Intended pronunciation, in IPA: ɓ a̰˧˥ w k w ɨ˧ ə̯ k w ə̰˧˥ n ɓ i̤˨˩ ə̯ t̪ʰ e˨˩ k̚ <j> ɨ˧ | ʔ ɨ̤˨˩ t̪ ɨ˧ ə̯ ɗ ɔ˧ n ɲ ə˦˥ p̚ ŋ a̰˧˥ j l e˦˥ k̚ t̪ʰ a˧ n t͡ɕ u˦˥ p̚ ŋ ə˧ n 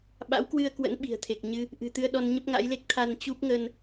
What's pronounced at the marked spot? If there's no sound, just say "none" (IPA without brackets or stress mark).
ɲ